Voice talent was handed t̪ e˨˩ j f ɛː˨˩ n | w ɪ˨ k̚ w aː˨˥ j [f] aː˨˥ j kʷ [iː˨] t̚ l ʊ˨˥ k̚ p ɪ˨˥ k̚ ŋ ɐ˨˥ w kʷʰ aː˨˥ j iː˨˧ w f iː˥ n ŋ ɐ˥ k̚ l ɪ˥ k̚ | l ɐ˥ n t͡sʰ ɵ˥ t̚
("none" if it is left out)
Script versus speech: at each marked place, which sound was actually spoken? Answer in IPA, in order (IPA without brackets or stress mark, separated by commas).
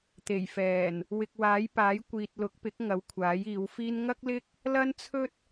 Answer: p, iː˨